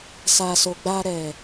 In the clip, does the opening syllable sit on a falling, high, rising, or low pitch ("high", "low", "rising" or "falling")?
low